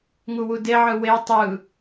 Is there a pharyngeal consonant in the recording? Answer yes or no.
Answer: yes